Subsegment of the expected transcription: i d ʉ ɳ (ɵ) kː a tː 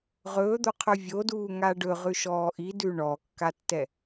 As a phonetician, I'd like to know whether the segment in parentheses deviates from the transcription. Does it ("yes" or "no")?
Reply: yes